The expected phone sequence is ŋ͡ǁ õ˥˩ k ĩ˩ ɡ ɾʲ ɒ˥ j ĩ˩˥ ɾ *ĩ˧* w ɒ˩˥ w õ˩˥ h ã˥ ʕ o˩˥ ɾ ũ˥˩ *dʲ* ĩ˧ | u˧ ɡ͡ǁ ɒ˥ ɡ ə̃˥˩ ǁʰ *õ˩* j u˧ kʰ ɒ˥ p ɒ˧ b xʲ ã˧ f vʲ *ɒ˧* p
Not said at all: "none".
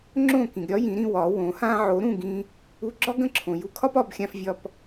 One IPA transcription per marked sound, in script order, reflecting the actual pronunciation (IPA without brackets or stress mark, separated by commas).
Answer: ĩ˧, ɡ, õ˩, ɒ˧